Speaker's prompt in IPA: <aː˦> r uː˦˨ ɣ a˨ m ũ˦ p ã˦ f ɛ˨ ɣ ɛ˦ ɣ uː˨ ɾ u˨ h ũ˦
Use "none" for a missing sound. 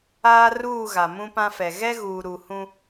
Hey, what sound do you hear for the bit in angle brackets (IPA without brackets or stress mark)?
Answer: aː˦